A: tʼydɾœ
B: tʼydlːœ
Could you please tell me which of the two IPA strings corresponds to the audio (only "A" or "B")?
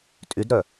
A